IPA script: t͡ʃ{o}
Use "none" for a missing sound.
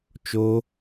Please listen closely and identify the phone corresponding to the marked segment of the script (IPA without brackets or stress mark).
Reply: o